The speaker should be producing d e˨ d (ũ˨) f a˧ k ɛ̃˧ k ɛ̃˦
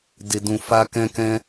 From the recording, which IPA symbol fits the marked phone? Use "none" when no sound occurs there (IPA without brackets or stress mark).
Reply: ũ˨